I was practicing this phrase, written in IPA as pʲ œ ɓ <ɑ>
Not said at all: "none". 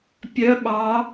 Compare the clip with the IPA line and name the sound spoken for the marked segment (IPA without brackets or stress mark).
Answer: ɑ